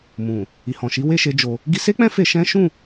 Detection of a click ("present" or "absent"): absent